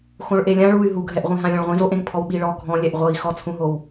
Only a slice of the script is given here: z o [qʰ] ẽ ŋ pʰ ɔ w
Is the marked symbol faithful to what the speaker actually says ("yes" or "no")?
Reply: no